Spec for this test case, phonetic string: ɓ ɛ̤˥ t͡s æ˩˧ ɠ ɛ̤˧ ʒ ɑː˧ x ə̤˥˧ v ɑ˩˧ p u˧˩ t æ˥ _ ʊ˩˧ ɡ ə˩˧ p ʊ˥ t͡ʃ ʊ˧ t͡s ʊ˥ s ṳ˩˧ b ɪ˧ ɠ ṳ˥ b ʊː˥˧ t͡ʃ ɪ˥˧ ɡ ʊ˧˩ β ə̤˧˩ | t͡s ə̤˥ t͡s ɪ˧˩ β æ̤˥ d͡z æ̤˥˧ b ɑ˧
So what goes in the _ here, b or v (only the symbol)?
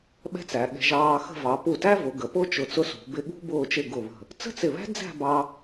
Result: v